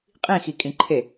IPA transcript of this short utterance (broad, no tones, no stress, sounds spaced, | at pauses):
qʼ ĩ x i kʼ ĩ ǃʰ e